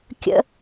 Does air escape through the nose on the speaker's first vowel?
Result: no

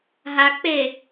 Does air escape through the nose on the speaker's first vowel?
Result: no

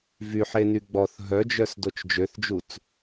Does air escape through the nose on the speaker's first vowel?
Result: no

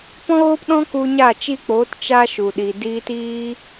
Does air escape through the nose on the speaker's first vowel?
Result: yes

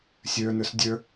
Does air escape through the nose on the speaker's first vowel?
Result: no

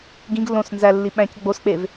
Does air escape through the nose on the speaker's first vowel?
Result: yes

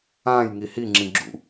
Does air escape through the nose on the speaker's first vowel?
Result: yes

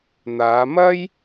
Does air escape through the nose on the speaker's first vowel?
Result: no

